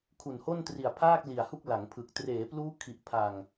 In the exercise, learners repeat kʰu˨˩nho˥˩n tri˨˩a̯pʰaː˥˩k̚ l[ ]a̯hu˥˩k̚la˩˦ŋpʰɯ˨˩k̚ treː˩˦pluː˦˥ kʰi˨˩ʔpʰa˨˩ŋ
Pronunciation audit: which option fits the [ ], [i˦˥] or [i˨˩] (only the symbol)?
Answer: i˨˩